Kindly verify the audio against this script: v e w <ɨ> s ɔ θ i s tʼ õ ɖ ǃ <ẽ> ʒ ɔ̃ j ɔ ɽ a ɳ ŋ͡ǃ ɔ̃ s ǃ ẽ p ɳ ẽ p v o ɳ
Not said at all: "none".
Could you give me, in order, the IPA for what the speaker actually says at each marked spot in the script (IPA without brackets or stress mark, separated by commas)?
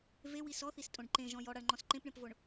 i, ẽ